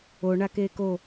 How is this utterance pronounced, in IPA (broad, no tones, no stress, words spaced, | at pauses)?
o ɳakeko